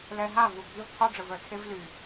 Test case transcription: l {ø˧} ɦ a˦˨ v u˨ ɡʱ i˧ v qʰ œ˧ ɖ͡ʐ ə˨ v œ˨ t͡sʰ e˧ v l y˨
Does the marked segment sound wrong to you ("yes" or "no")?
yes